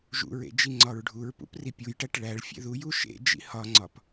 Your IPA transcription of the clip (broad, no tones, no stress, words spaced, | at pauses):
ʒṵɹḛ d͡ʒiŋ͡ǀɒɹɖʱuɹpṵp ripʲujʈæʈ ɭæɭ fʲḛðuju ʃḛd͡ʒḭ hɒŋ͡ǀɒp